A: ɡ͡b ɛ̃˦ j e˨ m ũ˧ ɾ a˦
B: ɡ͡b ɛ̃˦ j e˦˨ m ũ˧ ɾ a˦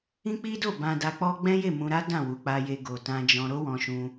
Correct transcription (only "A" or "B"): B